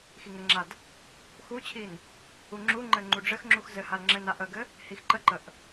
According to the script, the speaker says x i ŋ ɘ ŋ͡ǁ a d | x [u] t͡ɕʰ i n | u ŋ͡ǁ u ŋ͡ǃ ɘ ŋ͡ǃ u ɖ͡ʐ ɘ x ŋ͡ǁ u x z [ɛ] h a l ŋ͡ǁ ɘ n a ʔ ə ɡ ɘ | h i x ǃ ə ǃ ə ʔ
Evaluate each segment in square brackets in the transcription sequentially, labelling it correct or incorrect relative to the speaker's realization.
correct, incorrect: ɘ

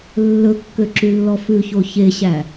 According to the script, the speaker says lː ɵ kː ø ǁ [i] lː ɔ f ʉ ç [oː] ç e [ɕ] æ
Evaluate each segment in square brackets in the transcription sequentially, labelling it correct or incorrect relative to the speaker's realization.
incorrect: y, incorrect: o, correct

